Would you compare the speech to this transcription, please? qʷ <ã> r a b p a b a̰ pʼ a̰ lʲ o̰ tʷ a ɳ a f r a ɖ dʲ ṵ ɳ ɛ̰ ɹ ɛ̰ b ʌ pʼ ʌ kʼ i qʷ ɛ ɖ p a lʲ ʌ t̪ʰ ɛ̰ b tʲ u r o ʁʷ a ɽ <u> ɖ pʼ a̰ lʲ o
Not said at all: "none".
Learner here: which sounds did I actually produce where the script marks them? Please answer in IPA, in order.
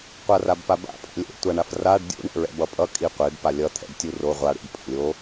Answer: a, ṵ

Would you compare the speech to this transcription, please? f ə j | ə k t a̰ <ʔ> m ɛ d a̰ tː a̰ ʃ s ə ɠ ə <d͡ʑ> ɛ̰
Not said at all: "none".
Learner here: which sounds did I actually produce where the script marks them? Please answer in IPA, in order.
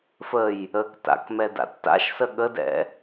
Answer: k, d

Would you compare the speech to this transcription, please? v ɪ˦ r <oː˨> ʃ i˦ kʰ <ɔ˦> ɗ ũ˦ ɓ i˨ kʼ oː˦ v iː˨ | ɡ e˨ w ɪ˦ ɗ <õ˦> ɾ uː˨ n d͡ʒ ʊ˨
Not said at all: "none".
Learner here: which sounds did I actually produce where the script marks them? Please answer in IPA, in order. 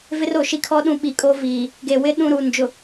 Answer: o˨, ɔ˦, ũ˦

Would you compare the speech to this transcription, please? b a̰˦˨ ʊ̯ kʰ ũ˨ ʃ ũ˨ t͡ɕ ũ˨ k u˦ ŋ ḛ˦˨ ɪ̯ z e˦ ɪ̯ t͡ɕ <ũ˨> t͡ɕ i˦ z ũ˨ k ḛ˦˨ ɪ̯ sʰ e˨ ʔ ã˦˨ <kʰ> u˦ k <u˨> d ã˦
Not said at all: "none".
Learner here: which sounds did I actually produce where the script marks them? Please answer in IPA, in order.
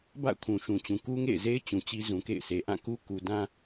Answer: ũ˨, k, u˨

